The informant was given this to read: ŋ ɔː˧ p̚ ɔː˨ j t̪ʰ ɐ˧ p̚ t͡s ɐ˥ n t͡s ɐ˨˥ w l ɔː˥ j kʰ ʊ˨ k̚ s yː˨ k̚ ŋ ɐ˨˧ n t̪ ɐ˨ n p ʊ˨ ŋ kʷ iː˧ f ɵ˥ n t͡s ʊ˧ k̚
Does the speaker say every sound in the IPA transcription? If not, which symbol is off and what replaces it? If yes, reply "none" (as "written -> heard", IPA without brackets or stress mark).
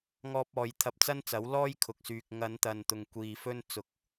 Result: p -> t̪